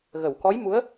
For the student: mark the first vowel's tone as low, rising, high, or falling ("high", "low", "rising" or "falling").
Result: low